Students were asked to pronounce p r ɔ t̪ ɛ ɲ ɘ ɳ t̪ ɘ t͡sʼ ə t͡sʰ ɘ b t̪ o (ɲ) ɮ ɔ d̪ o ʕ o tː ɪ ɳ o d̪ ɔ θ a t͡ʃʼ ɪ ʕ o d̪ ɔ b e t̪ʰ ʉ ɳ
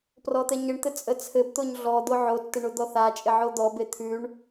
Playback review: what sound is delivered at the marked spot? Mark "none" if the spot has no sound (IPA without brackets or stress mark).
ɲ